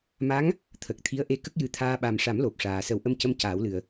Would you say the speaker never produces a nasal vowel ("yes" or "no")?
yes